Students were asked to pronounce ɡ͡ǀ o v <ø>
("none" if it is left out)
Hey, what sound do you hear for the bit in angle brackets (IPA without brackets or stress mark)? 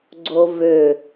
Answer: ø